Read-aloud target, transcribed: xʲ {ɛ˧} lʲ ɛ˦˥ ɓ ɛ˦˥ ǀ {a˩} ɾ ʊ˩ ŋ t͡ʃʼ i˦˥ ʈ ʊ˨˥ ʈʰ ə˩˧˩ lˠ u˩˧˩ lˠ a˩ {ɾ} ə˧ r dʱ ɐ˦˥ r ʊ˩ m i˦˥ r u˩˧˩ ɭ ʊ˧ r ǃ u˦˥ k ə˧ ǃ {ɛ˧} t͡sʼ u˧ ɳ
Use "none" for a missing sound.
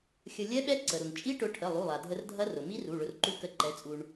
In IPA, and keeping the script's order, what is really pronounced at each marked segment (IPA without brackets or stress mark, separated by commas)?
ə˧, ə˩, dʱ, ɛ˨˥